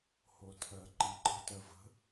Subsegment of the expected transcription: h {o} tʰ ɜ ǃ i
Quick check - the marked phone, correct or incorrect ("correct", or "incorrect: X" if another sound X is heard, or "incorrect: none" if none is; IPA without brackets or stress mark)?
correct